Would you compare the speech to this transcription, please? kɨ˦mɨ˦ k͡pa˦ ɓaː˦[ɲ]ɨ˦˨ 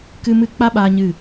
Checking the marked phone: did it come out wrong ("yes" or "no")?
no